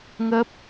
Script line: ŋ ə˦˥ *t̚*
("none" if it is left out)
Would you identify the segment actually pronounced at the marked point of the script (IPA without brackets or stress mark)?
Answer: p̚